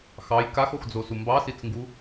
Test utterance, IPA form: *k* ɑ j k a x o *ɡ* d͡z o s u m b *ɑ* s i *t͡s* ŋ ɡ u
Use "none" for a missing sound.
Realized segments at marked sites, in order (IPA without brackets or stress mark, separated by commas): x, x, ɑ, t͡s